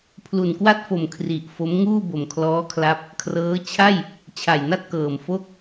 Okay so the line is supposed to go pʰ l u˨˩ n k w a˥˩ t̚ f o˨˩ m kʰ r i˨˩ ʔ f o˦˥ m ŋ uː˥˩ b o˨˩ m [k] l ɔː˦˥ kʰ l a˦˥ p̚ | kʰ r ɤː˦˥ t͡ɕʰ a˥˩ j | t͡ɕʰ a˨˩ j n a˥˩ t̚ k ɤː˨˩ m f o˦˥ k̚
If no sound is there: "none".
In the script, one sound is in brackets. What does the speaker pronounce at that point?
kʰ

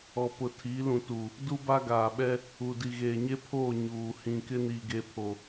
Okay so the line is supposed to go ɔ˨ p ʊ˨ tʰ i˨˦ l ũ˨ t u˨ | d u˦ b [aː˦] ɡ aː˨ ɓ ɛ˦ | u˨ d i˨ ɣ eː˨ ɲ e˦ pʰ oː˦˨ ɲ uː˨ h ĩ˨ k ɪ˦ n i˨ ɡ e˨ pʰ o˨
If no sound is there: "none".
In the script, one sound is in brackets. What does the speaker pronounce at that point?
a˦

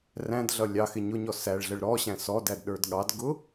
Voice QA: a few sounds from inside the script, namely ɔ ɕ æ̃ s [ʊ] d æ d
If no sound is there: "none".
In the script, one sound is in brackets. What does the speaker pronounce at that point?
ɔ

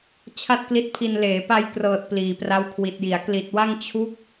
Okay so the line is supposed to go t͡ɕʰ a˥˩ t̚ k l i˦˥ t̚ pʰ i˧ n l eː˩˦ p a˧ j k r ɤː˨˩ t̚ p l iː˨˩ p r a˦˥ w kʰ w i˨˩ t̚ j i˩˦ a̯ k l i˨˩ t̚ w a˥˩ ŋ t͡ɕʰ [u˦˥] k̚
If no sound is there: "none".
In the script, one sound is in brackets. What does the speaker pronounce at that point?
u˦˥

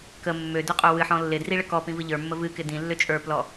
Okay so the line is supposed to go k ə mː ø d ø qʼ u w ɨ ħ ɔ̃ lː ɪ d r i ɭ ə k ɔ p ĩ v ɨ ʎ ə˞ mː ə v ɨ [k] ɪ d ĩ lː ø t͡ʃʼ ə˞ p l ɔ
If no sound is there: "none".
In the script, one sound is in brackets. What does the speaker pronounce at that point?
k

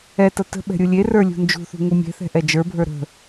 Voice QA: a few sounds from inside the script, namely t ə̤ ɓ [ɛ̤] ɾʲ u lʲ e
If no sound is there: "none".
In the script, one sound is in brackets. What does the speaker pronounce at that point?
ɛ̤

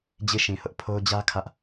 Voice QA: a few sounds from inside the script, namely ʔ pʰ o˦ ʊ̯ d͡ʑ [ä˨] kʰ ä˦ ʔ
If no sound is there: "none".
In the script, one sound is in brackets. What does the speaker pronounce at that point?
ä˦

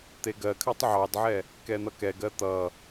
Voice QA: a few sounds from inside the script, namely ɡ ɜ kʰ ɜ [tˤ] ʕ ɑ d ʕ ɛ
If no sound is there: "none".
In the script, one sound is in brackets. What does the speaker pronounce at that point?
tˤ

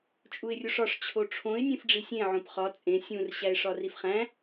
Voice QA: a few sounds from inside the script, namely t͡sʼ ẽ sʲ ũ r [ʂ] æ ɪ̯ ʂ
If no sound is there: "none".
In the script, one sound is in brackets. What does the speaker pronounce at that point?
ɕ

